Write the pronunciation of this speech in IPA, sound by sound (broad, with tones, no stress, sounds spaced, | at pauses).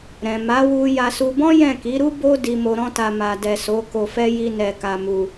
ɾ ɛ̃˨ m a˨˦ w u˧ j a˧ s u˧ b ɔ̃˦ j ɛ̃˦˨ k i˨˦ ɾ u˦ b o˦ d i˧ m o˧ ɾ ɔ̃˦ t a˧ m a˨ d ɛ˨ s o˨˦ k o˧ f ɛ˦ j i˦ n ɛ˧ k a˧ m u˧